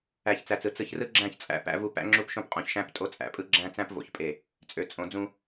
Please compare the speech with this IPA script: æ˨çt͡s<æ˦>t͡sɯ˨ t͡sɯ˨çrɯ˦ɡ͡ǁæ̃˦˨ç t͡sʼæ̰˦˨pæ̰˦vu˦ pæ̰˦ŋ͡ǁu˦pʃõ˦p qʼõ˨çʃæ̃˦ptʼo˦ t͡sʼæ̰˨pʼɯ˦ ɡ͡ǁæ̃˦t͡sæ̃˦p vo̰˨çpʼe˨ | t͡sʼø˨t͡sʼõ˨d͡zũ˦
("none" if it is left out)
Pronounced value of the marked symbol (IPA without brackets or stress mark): æ˨